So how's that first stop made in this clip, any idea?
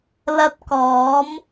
plain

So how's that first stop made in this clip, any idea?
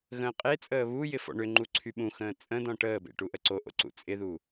ejective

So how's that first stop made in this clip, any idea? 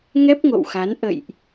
plain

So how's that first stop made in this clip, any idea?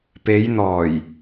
plain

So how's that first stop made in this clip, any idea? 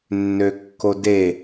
plain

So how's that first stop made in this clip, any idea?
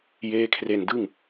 aspirated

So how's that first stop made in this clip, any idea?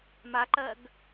click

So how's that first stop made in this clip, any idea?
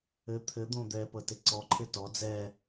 aspirated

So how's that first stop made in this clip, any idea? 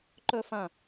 click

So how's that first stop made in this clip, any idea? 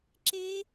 click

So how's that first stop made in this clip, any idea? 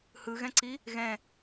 click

